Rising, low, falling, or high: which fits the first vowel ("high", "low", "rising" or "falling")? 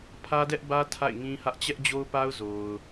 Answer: high